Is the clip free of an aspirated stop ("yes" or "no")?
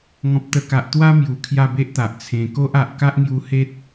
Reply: no